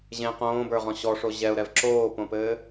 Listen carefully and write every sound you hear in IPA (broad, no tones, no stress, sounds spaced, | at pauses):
ʑ ẽ q õː b ə˞ ʁ ɔ̃ ɕ ɔ ʂ o ʑ ɛ ʊ̯ ɾ ɛ v ǁ oː p õ p ɘː